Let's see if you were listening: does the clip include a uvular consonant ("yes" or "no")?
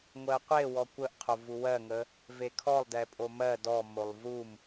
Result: yes